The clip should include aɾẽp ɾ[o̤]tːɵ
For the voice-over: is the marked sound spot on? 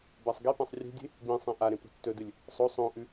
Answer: yes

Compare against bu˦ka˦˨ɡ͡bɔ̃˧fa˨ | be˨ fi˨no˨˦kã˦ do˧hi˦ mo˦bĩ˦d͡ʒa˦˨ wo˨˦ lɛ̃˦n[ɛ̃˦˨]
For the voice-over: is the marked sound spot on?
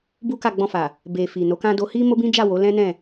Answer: yes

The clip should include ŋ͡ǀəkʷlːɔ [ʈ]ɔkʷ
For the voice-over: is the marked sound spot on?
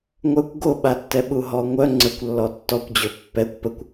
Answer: no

